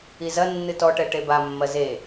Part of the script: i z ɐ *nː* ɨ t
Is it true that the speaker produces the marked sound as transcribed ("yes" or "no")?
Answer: yes